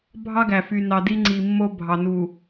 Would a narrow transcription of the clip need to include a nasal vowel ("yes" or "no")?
no